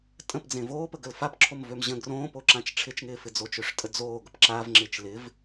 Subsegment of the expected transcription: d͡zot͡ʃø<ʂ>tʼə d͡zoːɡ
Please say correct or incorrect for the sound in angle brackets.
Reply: correct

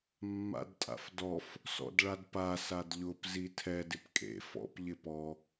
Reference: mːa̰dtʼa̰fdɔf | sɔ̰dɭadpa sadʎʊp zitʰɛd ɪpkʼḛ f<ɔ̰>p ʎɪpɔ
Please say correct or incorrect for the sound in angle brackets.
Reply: correct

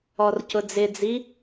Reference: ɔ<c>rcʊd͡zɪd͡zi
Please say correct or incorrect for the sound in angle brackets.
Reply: incorrect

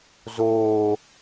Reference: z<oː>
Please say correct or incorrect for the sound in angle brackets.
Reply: correct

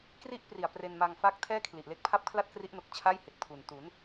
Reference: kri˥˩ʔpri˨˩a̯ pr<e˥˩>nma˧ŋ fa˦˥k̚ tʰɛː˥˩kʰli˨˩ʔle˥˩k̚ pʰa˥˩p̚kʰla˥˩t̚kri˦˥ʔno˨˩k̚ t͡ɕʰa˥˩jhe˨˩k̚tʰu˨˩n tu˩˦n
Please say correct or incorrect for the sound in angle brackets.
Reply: incorrect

